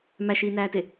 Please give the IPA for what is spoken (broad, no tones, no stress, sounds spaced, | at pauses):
m æ ʃ iː n æː t e